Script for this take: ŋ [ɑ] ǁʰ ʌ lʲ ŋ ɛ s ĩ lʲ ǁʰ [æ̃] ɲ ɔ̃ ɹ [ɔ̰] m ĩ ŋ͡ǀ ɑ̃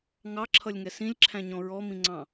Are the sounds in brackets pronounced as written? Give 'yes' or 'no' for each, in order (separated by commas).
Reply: yes, yes, no